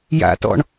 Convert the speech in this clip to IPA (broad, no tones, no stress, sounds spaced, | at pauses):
j a̰ t ɔ̰ ɳ